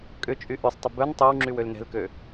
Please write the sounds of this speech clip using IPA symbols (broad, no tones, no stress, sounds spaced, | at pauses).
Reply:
kʼ ʏ t͡ʃʼ y ʔ y sˤ tˤ ʊ b œ n tˤ ø w ŋ͡ǁ y w ø l n ɛ̤ l k ø